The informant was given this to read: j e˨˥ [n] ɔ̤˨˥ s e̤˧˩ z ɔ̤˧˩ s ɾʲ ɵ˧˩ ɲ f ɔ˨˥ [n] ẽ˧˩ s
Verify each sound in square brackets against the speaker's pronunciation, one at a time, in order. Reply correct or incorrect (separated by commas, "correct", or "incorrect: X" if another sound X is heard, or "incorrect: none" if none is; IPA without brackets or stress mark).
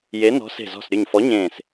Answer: correct, incorrect: ɲ